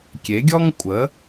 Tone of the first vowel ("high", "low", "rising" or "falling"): rising